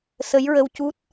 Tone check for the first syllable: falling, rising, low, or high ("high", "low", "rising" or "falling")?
rising